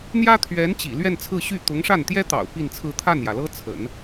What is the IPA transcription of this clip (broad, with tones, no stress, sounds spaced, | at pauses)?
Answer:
n̪ j ä˥ t̪ʰ ɥ ɛ˧˥ n t͡ɕ ḭ˨˩ l ɥ ɛ˥˧ n t͡sʰ ɹ̩˥˧ ɕ y˥˩ t̪ ʊ˧˥ ŋ ʂ a˥˩ n t̪ j ɛ˥ t̪ ɑ̰˨˩ ʊ̯ p i˥˧ n t͡sʰ ɹ̩˥˧ t̪ʰ a˥˩ n j ä˩ l ɤ˥ t͡sʰ ə̰˨˩˦ n